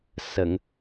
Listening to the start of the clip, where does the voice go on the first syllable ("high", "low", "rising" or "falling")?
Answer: low